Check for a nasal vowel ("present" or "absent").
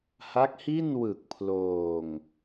absent